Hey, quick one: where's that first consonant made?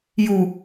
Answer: palate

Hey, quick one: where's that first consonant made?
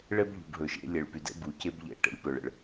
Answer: retroflex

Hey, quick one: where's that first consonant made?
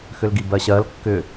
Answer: velum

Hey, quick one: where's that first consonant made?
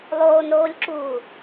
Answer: tongue tip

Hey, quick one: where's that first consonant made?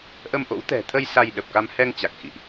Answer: throat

